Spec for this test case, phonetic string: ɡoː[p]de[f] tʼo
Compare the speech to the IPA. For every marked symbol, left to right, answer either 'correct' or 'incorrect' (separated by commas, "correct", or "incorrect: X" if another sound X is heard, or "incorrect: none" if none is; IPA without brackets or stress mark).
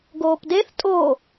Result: correct, incorrect: θ